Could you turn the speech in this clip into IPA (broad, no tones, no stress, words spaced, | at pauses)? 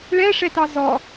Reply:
ɭɛʂɛtɑ zɔ